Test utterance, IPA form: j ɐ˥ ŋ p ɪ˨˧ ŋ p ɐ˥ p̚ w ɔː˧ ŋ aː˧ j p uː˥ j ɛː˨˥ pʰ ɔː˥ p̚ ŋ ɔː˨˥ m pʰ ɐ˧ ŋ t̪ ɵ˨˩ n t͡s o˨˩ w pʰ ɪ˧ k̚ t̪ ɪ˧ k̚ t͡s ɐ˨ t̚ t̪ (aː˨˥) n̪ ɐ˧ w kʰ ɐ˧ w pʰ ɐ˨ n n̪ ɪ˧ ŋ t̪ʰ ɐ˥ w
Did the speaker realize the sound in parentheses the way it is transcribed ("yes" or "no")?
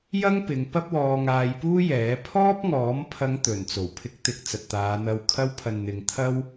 no